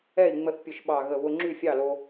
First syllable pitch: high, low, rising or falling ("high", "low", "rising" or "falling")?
falling